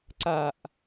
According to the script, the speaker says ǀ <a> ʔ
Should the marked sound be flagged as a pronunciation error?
no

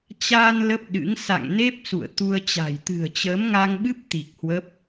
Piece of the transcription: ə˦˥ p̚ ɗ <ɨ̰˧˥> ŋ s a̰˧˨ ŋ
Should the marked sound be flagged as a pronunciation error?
no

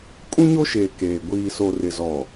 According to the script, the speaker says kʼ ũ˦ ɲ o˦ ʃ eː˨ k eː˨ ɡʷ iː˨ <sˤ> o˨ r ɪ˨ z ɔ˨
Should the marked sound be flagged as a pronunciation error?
yes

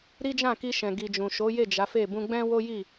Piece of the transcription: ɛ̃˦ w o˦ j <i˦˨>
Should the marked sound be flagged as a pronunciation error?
no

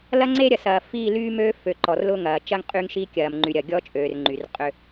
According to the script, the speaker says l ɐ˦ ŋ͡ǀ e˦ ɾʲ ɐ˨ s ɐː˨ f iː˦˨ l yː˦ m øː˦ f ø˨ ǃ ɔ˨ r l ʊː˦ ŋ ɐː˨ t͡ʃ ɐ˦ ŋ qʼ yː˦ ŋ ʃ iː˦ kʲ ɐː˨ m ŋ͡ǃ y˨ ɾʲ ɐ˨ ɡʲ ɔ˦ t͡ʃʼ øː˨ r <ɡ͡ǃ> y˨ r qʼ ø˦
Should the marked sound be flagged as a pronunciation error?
yes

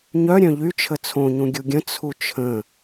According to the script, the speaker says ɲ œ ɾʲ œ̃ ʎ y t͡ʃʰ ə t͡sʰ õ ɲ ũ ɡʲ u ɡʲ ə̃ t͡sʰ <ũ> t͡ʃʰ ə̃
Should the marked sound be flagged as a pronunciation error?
yes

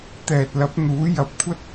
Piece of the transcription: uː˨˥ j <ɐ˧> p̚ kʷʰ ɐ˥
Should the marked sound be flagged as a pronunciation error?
no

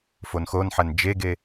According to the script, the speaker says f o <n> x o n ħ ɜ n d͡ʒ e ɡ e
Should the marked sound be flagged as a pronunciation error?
no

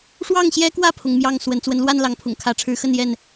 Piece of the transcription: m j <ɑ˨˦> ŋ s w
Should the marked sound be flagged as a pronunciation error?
yes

